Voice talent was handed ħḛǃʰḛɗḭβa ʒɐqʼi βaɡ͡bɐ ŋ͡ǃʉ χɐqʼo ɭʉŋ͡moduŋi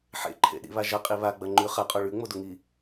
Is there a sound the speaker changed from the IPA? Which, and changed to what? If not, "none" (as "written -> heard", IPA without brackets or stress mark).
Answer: none